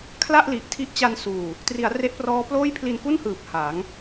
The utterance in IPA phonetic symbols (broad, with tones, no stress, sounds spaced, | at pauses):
kʰ l a˥˩ ʔ l i˨˩ ʔ tʰ i˦˥ ʔ t͡ɕ a˧ n s uː˨˩ | t r i˩˦ a̯ r e˦˥ ʔ p r ɔː˦˥ p l oː˥˩ j pʰ l i˧ n k u˥˩ n h ɯː˨˩ p̚ h a˩˦ ŋ